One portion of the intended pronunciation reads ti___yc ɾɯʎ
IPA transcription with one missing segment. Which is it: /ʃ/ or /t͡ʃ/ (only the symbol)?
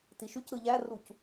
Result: ʃ